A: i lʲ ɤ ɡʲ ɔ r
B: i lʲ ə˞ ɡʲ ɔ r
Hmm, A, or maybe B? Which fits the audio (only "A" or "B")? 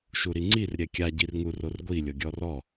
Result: A